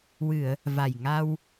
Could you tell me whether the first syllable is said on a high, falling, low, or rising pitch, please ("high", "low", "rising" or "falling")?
low